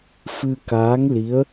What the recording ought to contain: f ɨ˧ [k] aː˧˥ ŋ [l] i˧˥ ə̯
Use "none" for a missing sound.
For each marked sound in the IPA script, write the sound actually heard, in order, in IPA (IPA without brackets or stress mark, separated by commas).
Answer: k, l